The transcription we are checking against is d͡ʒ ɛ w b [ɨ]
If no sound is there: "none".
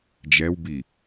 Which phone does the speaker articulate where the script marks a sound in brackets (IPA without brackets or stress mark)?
i